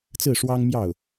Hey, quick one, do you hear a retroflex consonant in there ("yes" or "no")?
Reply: yes